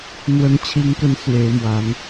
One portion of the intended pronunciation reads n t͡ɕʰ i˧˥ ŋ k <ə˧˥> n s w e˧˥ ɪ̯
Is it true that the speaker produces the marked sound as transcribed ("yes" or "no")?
yes